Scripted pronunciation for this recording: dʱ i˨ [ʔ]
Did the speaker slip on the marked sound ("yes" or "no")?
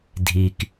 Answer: yes